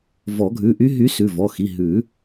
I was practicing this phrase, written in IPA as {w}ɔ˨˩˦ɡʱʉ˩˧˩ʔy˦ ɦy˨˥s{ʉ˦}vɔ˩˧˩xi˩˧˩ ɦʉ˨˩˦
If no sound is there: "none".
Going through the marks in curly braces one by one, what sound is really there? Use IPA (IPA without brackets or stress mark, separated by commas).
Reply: v, ʉ˩˧˩